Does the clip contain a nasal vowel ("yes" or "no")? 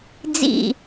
no